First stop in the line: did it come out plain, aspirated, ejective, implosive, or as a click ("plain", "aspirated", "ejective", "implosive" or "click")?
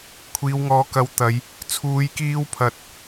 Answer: aspirated